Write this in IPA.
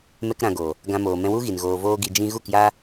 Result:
m ɛ˧ k ɾ ã˨ ɡ oː˨ | ɡ ã˧ m oː˨ m ɛ̃˧ w u˦ ɣ i˨ n ɣ oː˨ v oː˧ ɡ i˧ d͡ʒ ĩ˧ ɣ u˦˨ k j aː˦

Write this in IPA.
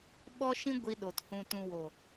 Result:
ɓ ɔ˦ ʃ ĩ˦ ɡʷ i˧ ɗ o˨ t h ũ˨ t ũ˨ w o˨

